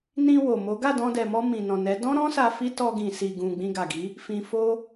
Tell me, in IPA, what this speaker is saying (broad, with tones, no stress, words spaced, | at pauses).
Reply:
nĩ˧ wo˨mo˨˦ ɡa˦˨dɔ̃˧dɛ˨mɔ˧ mĩ˨nɔ̃˨nɛ˨˦ dɔ̃˦ɾɔ̃˦sa˧ fi˦tɔ˧ ɡĩ˨si˨ɡũ˨ ɡ͡bĩ˧ɡa˨ɡi˨˦ | fĩ˨fo˧